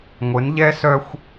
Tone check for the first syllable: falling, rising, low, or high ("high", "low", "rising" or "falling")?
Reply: rising